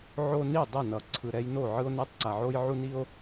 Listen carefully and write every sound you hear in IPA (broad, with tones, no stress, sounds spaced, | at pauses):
ʕ o˦ n i˥˩ dˤ ɛ˥˩ n ʌ˨˩ ǀʰ ɯ˨˩ ɾ ɛ˦ j n o˥˩ ʕ ɯ˦ o̯ n ɛ˦ tˤ ǀ a˨˩ ʕ o˦ j ʕ u˦ n i˦ o̯